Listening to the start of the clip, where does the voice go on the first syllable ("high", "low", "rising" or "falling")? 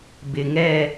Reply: low